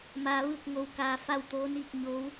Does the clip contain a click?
no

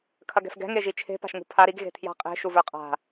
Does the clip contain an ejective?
yes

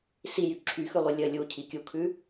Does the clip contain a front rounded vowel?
yes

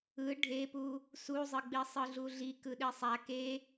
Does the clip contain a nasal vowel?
no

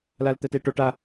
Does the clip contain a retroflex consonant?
yes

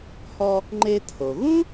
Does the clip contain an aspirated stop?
yes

